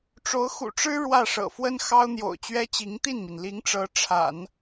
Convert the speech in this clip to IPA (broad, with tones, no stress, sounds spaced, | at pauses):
ʈ͡ʂ o˧˥ ʊ̯ x ṵ˨˩ ʈ͡ʂ ɻ̩˥ ɻ w ä˥˩ ʂ ɤ̰˨˩ f w ə˥ n x ɑ˥ ʊ̯ n̪ j o̰˨˩ ʊ̯ t͡ɕ ɥ ɛ˥ t͡ɕ i˧˥ ŋ t̪ i˥˩ n m i˩ n l i˧˥ ŋ ʈ͡ʂ ɤ˧˥ ʈ͡ʂʰ a̰˨˩˦ n